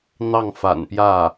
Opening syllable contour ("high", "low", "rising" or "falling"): falling